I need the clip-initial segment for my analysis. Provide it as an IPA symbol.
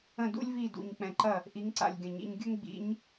ə̃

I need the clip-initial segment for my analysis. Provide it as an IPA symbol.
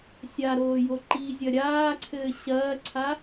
sʲ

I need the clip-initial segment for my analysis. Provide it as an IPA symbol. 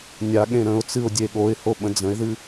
nʲ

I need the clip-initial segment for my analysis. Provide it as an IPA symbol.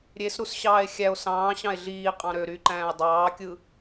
ɾʲ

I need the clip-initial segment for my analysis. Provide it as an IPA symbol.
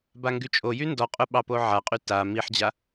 b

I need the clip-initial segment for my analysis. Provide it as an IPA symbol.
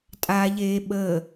tʼ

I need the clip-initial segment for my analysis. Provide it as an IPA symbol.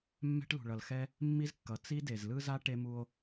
mː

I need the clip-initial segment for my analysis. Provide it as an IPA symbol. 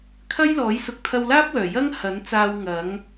kʰ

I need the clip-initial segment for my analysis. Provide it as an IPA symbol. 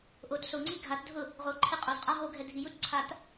ʔ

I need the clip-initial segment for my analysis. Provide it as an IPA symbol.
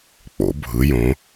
k͡p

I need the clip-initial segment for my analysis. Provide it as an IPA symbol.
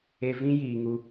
e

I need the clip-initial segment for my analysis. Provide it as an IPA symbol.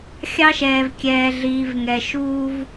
xʲ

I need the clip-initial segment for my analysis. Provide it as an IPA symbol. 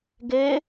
ɡ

